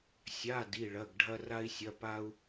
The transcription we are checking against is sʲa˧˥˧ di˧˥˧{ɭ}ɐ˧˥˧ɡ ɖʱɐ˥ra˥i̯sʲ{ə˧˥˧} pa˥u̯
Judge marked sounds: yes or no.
yes, no

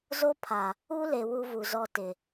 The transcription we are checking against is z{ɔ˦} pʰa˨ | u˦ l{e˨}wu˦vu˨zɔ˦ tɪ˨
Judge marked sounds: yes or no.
no, yes

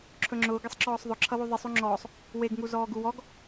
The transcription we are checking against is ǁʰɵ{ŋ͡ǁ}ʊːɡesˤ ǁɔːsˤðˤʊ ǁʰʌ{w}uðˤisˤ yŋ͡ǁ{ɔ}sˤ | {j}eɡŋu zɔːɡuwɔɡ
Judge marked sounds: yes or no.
yes, yes, no, no

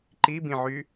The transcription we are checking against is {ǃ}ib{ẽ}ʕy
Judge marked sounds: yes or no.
yes, no

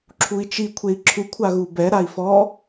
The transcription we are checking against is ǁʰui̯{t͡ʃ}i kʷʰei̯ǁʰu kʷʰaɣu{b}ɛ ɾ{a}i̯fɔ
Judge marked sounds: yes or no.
yes, yes, yes

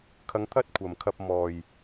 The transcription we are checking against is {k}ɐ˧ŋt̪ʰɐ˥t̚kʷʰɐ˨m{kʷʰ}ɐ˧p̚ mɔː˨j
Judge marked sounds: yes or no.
no, no

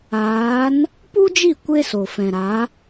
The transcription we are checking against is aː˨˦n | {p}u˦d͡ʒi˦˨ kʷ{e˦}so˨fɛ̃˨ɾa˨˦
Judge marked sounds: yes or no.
yes, yes

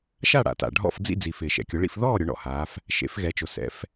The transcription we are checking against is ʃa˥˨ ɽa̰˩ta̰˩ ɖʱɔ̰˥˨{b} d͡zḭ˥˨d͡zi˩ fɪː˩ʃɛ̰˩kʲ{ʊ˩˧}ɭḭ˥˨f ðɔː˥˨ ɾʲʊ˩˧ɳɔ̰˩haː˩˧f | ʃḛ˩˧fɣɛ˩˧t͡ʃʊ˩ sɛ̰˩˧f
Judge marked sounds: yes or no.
no, yes

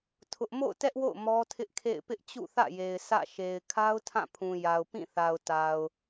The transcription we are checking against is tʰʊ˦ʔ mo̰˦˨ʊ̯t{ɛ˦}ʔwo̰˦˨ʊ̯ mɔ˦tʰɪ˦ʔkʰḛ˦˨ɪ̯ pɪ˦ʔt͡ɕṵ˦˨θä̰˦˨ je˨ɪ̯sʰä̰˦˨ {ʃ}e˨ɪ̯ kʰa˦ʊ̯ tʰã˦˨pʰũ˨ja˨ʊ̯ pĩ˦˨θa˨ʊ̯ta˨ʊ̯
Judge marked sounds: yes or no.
yes, yes

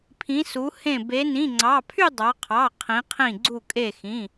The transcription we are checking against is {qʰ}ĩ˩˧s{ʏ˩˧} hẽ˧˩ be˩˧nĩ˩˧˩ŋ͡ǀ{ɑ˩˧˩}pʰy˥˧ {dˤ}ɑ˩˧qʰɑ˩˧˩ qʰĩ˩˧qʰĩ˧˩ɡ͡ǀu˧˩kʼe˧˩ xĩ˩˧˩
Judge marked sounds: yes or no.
no, no, yes, yes

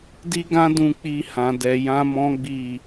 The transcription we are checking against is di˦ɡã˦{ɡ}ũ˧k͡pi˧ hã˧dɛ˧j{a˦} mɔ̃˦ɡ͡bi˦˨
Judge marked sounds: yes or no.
no, no

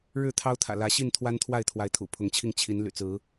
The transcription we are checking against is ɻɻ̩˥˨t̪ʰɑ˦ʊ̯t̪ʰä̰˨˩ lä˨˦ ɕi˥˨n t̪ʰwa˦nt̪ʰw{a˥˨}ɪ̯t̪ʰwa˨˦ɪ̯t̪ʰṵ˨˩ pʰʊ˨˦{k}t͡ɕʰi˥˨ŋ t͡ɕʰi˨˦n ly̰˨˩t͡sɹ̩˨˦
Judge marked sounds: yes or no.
yes, no

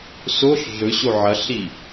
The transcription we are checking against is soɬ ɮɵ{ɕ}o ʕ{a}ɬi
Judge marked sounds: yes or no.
yes, no

